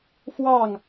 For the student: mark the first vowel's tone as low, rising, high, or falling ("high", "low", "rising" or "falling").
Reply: falling